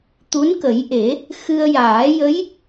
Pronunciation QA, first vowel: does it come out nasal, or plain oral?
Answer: oral